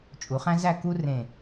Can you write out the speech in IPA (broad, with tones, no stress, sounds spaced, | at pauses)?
t͡ʃʼ u˩˧ χ æ̃˥ z æ˥˧ k u˥ r ẽ˧˩